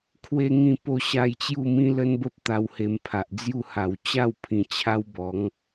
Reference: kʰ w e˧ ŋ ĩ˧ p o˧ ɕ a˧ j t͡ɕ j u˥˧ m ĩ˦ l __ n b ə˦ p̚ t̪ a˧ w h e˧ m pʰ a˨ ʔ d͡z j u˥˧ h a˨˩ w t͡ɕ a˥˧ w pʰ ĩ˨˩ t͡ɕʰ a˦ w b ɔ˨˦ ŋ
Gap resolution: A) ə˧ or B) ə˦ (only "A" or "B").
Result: B